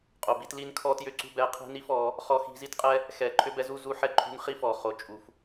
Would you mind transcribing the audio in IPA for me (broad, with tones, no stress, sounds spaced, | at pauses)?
qʼ o˨ b i˧ t l i˦ n kʰ ɔ˦ t j ʏ˦ ǀ ṳ˦ b ɛ˧ qʰ i̤˦ n i˦ f ɔ˨˦ | χ ɔ˧ x i̤˧ z i˦ t qʼ ɛ˦ | x ɛ˨ ǃʰ ʏ˦ b ɛ˦ z u˦ z u˧ ħ ɛ˧ ǃʰ ṳ˧ n χ i˦ f ɔ˨ χ o˨ t͡ʃʼ u˨ f